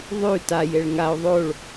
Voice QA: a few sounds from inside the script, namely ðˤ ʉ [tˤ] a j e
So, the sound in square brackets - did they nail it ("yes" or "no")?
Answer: no